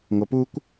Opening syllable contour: low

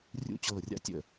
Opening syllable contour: falling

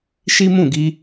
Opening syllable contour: high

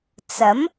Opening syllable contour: rising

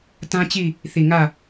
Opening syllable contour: high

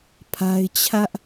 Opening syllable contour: high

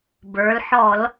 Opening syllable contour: rising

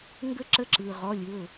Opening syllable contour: high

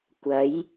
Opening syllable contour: rising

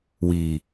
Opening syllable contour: low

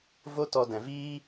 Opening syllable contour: high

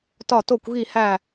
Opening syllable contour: falling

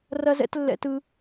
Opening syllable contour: high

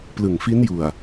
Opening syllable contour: low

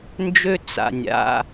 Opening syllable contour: high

